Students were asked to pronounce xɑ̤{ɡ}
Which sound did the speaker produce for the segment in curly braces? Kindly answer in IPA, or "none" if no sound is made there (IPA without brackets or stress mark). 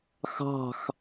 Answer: x